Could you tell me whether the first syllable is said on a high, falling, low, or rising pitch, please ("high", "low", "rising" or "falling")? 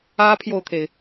high